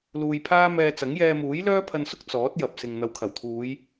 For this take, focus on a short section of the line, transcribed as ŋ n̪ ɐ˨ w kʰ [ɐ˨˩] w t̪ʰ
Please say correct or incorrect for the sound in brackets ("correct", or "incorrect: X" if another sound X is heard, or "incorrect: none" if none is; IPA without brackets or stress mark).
correct